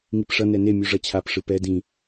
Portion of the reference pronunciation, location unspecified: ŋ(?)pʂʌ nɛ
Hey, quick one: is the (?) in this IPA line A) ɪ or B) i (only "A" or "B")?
B